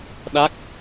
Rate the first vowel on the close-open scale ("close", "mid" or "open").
open